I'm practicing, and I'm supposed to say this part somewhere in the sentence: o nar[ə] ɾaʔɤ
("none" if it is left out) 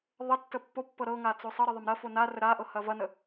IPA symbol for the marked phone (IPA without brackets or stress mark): ə